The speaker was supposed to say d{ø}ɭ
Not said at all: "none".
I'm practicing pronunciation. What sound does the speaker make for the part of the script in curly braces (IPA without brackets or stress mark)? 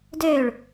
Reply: ø